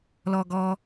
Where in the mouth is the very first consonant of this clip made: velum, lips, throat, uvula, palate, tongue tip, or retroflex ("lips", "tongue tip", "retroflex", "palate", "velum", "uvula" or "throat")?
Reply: tongue tip